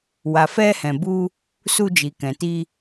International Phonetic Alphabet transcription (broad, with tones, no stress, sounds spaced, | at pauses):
w a˨ f ɛ˧ h ɛ̃˨ b u˧ | s u˧ d͡ʒ i˨ k ɛ̃˨ t i˧